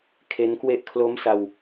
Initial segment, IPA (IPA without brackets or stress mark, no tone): kʰ